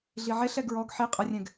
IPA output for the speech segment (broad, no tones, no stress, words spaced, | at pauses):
ɮiʕeɬɛ ɡɹɔɡ ħi qʼərʲɛ̃ɡ